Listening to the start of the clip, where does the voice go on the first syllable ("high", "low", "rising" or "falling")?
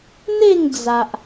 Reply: falling